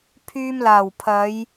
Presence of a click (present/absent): absent